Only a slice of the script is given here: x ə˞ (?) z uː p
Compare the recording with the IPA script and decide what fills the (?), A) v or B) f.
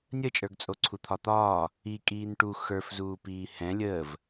B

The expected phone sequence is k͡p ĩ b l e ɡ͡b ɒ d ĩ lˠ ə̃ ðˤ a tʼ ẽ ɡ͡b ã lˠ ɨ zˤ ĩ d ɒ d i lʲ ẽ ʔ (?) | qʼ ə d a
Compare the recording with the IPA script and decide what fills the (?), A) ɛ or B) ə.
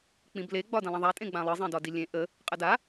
B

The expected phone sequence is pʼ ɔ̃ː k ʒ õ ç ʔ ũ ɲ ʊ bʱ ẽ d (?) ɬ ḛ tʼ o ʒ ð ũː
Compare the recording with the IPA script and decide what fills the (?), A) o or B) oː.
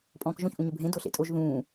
A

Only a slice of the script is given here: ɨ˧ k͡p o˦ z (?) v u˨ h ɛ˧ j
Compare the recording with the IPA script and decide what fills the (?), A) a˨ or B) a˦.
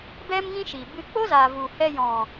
A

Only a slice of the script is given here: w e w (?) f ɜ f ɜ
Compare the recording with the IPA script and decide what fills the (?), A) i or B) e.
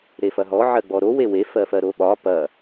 B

